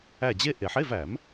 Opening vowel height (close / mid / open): open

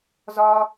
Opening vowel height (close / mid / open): open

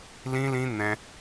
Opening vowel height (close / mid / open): close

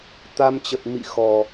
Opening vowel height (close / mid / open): open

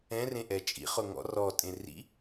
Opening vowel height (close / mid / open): mid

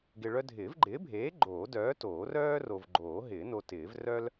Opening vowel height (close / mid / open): close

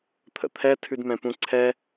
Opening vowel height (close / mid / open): mid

